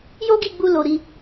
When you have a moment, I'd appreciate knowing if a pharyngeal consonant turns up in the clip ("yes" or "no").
no